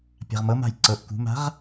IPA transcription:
pʲa̤ʁmɤma̤j ǀɤʔ kṳma̤ʁ

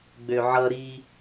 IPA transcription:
ɡ͡bøʕʌɾi

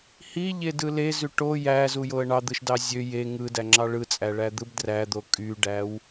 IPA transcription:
hiʎedɯ lezy ʈo jæzujoə̯ ɳɑd̪ɯʃdɑ zʲø je ŋɯdæŋ͡ǁɑ ɭɯt͡sʼæɭæd̪ɯb dræd̪o kʼyɖæw

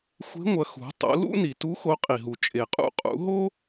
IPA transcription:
xʷe̤˧˥ŋʷɐ˩˧ xṳ˩˧ tˤo̰˩˧lṵ˥ ni˩tu˧˥ xo˧˥qʼi˩ɦu˩ t͡ʃʼe˩qʼṵ˧qʼṵ˩˧ɦo˥

